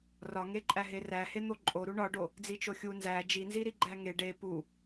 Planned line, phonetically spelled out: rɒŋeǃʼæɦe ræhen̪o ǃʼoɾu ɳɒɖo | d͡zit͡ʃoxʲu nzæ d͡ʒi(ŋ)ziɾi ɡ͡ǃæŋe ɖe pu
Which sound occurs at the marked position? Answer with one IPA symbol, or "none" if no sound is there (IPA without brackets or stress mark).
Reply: n